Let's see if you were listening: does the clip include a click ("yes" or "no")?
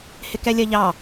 no